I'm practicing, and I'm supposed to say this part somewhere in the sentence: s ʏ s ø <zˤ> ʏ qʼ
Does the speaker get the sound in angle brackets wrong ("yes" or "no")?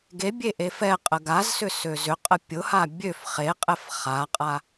yes